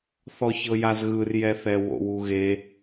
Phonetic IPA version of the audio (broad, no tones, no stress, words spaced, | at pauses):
θɔçɤjazɣɯr jɛθɛwo̰w uɣe